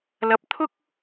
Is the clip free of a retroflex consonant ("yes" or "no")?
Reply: yes